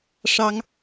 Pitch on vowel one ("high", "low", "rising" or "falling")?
high